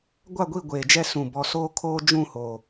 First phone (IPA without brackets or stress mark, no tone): ɡʷ